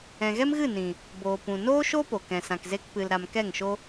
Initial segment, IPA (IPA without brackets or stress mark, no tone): ɛ̃